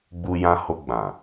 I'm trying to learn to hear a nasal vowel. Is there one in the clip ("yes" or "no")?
yes